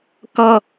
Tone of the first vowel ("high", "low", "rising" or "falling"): high